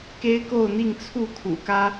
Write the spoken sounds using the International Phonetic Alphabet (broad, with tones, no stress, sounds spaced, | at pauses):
k e˦ ɪ̯ k o˥˨ ʊ̯ n̪ i˥˨ ŋ t͡sʰ u˥˨ kʰ ṵ˨˩ k ä˦